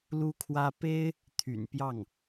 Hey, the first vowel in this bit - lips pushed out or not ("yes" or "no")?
yes